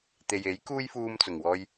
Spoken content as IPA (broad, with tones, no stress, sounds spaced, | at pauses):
t̪ e˨ j e˨˥ j k uː˥ j f uː˥ m t͡s ʊ˨˩ ŋ w ɔː˥ j